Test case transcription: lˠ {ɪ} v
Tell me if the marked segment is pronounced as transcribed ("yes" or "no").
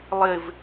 yes